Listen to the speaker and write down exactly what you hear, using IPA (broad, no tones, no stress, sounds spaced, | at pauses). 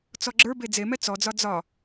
t͡s ɔ ɡ͡ǁ ə˞ b e d͡z e m ɛ t͡s ɔ d͡z ɒ d͡z ɒ